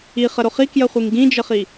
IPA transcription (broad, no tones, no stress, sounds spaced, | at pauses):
i χ ə ɾ o χ i k j ə χʷ i ŋ ɡ ĩ d͡ʒ ə χ i